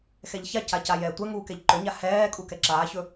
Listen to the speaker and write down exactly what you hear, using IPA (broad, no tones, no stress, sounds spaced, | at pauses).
x ɛ ʎ ç a c a c a j ɛː tʷ ɛ ŋ uː k ɛ ʎ ǃ ɵ ɲ a h ɛː kʼ u k ɛ ǁ aː ç ɵ